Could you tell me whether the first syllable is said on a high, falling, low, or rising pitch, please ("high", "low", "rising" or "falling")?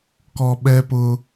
low